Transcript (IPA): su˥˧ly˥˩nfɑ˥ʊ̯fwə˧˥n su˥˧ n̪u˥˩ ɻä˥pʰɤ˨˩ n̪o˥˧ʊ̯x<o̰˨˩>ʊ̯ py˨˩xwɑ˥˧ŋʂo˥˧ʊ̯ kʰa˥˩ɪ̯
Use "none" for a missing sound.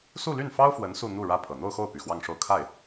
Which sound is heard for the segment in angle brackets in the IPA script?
o˥˩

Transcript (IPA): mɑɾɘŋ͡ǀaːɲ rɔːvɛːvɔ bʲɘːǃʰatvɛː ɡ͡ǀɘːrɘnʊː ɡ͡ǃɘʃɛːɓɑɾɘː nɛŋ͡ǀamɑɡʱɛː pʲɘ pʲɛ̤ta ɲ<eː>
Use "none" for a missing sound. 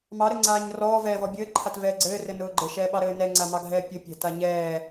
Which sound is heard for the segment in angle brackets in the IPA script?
ɛː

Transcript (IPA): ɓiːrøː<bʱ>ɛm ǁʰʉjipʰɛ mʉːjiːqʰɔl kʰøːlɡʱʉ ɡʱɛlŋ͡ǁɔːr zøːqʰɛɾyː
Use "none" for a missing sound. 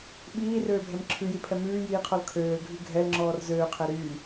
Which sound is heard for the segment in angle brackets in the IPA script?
bʱ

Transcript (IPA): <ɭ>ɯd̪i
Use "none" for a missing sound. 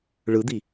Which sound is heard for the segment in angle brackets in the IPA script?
ɭ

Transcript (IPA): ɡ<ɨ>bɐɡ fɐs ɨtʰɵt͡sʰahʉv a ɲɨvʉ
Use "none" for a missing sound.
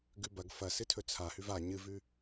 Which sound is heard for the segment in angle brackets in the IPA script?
ʉ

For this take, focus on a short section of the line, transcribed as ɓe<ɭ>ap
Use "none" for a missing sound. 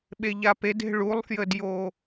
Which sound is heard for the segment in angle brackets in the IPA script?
ʎ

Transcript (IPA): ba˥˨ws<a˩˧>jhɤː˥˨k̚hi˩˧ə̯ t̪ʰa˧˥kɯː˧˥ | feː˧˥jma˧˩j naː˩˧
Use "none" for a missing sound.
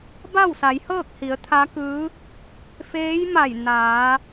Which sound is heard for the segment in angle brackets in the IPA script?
a˩˧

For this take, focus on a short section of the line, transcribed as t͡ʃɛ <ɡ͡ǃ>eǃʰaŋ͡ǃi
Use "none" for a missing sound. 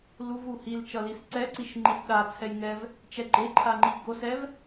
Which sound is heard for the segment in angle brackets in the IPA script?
ɡ͡ǃ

